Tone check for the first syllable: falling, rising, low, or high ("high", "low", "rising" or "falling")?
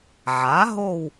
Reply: rising